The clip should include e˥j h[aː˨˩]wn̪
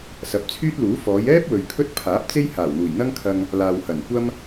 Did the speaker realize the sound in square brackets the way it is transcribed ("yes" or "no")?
yes